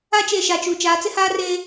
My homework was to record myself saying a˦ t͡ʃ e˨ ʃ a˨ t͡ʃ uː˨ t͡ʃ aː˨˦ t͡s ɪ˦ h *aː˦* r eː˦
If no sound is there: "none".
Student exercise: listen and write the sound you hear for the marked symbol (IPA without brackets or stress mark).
aː˦